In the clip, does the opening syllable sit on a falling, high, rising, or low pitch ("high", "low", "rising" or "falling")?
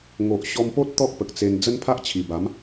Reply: low